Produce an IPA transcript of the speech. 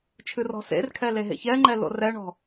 t͡ʃʰ ɨ r ɔ̤ s ḛ r kʰ ɛ l e ɦ ḛ ç ɛ ŋ͡ǃ ɛ l o̰ r ɛ ɳ ɔ̤

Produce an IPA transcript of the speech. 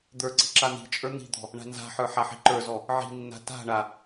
d̪ ə˞ ǀ i̤ ǁ a n̪ i̤ t͡ʃʼ ə˞ n̪ i̤ d̪ ɔ̤ | ɳ a̤ n z a̤ ħ ə˞ ħ a ħ i̤ ǃ ə˞ z ɔ | ʕ i̤ nː a̤ t a̤ ɳ a

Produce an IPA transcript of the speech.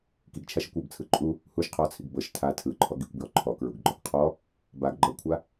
k i ɡ t͡ʃʰ a ʃ ɤ kʷ ɔ b t͡sʰ ɯ ǃʼ u | h u ʃ qʰ ɔ t͡sʰ i ɡ b ɤ ʃ tʰ a tʰ ɯ ǃʰ ɔ ɡ i kʷ b j ɔ ǃʰ ɔ k ɹ u ɡ ɡ͡ǃ ɔ ɡ qʰ ɔ | b a ɡ ɡ͡ǃ ɤ kʷʰ a

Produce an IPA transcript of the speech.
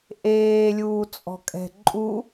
ʔ eː lʲ uː t͡sʼ ɔ̤ kʼ ɛ̤ ǃʼ u

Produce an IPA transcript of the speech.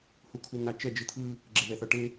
h u kʰ u n̪ a t͡ʃ ɛ d͡ʒ ɯ t̪ʰ ɯ | ɡ͡ǁ e ð ɛ θ ʌ ʈ e

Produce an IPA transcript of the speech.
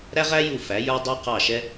ɾ æ˥ ʁ æ˥ j u˥˩ f æ˩˥ j ə˞˥ dˤ ə˞˥ q ɑ˥˩ ʃ ɛ˥

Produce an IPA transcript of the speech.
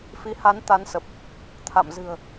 f i˨˦ h a˨˦ n t̪ a˨˦ n s ə˨˩ p̚ | t̪ʰ a̰˧˨ m z ɨ̤˨˩ ə̯

